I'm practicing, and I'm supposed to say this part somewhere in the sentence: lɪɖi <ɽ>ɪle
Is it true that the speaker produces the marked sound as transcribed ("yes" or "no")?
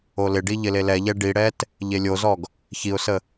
no